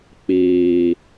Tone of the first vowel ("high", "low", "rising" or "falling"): low